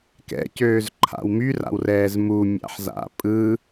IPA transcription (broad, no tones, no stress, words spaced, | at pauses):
kɛ̰cøːzǃʰa̰w myra̰wrɛːz mumʲa̰ħza̰ pʼɯ